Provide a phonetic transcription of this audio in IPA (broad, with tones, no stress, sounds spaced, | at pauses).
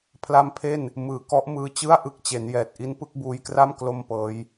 pʰ l a˦˥ m pʰ e˥˩ n | m ɯː˨˩ k ɔ˦˥ ʔ m ɯː˧ t͡ɕ ɯ˥˩ a̯ ʔ ɯ˦˥ k̚ t͡ɕ e˩˦ n j ɛː˨˩ t̚ ʔ i˦˥ n p ɯ˥˩ k̚ b uː˧ j k r a˥˩ m k l o˥˩ m p ɤː˦˥ j